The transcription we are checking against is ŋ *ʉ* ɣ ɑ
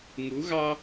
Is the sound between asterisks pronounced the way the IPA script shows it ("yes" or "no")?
no